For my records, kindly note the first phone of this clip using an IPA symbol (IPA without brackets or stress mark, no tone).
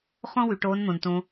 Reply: χ